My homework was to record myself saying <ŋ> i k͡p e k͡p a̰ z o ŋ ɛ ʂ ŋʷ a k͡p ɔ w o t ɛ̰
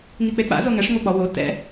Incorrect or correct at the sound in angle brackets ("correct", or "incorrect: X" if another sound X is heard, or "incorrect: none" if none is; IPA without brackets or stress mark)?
correct